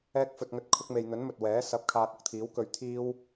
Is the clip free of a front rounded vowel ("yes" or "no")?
yes